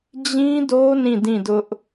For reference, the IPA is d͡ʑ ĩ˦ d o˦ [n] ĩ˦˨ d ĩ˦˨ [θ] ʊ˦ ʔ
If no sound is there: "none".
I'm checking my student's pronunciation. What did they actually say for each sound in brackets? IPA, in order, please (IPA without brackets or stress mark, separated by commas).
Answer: n, d